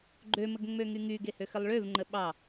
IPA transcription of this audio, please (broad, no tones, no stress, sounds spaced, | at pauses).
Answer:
ɡ͡ǃ ø m ə ɡ ŋ͡m ø ŋ y ŋ y ɡ e h ø x ə lˠ ɭ ø v ŋ͡ǃ ə ɓ ɑ